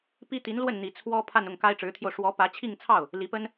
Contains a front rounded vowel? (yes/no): no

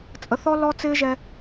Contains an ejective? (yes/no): yes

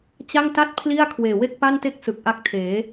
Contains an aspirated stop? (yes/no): yes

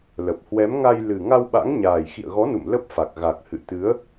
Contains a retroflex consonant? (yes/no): no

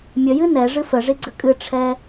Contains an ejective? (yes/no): yes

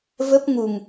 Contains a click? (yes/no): no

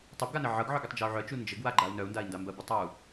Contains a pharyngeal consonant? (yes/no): yes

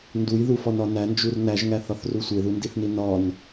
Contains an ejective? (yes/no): no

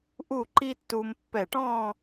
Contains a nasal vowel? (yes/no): yes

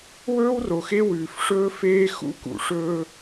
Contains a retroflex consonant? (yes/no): yes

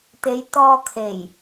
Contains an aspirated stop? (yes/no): yes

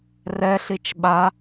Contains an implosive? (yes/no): yes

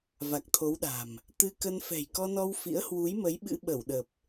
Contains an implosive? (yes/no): yes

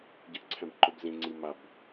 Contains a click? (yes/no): yes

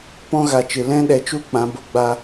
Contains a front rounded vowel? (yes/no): no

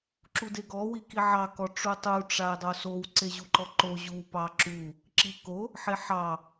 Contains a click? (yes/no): yes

